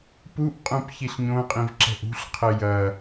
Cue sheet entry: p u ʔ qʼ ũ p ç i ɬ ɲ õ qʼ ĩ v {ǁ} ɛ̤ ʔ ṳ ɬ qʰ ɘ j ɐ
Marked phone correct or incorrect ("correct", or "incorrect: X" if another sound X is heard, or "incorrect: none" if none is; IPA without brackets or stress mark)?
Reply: correct